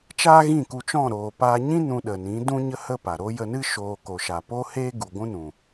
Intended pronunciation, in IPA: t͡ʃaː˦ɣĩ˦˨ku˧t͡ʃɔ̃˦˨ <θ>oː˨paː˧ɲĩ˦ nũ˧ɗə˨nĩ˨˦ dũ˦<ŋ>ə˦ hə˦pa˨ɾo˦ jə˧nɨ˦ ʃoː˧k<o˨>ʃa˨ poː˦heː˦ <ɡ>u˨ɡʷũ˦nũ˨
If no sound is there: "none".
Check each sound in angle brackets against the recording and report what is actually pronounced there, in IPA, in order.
ɾ, ɲ, o˨, ɡ

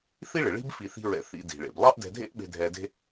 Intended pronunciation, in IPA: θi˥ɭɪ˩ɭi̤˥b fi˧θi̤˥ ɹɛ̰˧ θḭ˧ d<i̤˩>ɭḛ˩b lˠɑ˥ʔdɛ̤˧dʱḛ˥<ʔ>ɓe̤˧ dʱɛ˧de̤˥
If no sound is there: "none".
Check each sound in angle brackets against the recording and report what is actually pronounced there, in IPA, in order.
i̤˩, ʔ

